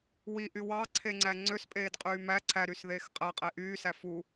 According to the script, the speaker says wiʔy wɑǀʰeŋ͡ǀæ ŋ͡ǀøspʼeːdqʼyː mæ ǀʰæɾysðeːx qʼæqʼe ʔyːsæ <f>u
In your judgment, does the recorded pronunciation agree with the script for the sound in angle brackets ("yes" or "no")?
yes